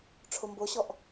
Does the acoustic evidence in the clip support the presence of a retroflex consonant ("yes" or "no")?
yes